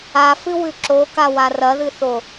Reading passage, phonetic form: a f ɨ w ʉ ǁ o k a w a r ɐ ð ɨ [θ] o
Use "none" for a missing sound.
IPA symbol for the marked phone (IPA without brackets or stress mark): θ